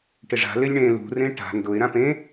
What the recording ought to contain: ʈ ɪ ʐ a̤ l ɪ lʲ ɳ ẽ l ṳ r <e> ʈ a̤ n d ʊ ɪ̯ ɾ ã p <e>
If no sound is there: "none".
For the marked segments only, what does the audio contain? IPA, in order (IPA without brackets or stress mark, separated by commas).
ẽ, ẽ